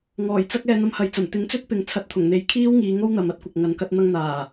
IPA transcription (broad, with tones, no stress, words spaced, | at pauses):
ŋɔː˨˩jt͡sɐ˥k̚ ɛː˧n̪ɐ˧mhɐ˨j t͡sɐ˨˩m t̪ɪ˨˥ŋt͡sɵ˥t̚ pɪ˨˧ŋ t͡sʰɐ˧t̚t̪ʰʊ˨˩ŋn̪e˨˥j kʰiː˥wŋiː˨˧ ŋo˥wn̪ɐ˨m ɐ˥t̚kʷɐ˨k̚ŋɐ˨˧nkɐ˥t̚ n̪ɐ˧ŋn̪aː˨˩